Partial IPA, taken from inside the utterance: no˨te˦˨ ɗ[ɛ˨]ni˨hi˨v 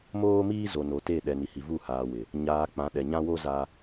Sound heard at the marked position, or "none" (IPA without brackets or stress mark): ɛ˨